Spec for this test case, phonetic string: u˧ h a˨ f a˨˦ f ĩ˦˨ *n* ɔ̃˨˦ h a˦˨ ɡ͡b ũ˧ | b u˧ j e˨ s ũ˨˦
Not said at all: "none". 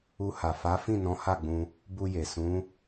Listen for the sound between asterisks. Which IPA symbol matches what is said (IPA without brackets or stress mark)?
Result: n